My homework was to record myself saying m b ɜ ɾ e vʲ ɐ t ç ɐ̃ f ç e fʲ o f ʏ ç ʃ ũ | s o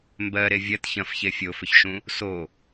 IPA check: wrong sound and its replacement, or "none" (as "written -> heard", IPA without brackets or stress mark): none